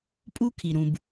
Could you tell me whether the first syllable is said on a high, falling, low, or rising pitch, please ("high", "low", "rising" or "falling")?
high